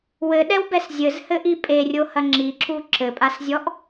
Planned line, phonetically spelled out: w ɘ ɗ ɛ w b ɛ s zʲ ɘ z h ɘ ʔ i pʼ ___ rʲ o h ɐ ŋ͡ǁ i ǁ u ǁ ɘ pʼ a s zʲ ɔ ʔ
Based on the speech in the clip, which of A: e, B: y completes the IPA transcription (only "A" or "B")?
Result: A